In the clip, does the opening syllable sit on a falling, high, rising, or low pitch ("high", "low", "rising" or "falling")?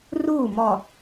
falling